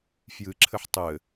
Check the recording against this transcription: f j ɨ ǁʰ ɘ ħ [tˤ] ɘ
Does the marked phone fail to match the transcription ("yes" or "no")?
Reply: no